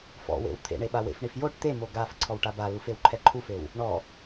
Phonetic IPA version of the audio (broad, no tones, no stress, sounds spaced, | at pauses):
f ɔ̰ w ḛ w t̪ʰ ḛ ɳ e ɓ a w ḛ f ɳ i f j o ʈ t̪ e m o ɡ a f ǀʰ ɔ w ʈ a b a l u f e w ǃʰ ɛ ǃʰ u f e w | ɳ ɔ